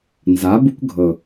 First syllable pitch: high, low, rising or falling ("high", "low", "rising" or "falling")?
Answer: rising